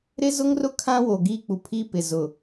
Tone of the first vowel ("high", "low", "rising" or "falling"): high